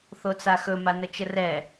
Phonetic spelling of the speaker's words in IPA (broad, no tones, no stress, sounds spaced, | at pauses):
θ o t͡s a x ɵ m a n ə t͡ʃ ə r ɛ